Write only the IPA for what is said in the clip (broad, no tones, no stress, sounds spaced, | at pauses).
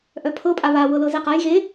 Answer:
ʔ œ pʰ ɤ pʼ a β a w ɤ l ɤ z e q a j ɣ e